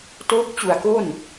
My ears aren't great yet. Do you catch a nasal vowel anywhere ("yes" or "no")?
no